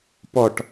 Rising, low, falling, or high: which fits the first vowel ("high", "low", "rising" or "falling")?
falling